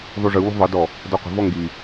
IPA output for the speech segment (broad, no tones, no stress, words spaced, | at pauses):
ðˤuʐɯwṳ ðˤɯdɔ | dɔqʷə̤vɔ ŋɡi